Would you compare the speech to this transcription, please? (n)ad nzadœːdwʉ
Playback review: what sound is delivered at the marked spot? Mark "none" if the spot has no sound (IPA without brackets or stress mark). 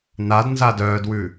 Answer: n